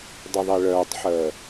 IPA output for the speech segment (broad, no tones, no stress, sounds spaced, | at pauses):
dˤ ə ðˤ i ɭ œː tˤ ħ əː